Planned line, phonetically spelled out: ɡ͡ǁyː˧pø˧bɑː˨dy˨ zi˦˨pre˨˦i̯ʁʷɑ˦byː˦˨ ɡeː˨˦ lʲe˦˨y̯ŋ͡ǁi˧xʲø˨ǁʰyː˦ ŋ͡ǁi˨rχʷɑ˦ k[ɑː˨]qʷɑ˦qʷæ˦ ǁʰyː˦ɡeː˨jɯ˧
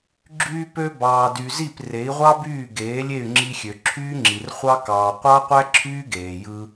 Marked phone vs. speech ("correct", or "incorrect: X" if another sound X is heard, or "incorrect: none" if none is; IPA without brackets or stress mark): correct